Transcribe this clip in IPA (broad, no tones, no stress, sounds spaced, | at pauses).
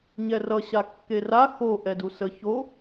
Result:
ɲ ɛ r ʌ ɕ a kː e r a x o ʔ ɛ d u s ə ç o